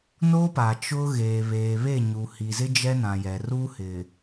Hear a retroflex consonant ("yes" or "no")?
no